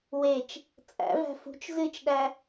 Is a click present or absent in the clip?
absent